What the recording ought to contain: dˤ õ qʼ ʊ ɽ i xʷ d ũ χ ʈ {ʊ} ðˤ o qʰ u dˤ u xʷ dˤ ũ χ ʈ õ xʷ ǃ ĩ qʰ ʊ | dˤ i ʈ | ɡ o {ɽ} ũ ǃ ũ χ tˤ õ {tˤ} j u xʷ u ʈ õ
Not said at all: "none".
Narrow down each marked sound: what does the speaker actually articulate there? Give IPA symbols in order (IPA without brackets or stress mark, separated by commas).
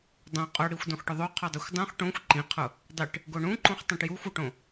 ʊ, ɳ, ʈ